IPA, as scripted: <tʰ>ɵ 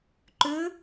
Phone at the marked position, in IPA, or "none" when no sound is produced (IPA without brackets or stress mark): ǃ